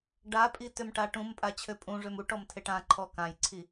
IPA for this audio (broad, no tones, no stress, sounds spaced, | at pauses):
ɖ a pʼ i t ø m ʈ a ʈ ũ m pʼ a t͡ɕʰ ø pʼ ũ ʐ ø m u ʈ ɔ m tʰ e ʈ ã ǃʰ ɔ k ã j ǀʰ i